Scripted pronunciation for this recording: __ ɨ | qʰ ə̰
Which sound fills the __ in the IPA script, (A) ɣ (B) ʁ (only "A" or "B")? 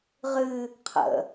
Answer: B